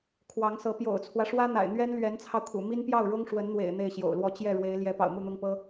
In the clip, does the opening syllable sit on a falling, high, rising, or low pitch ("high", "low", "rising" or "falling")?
rising